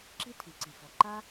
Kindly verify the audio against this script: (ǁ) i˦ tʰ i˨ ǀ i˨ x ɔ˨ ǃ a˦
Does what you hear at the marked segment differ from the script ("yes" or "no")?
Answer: no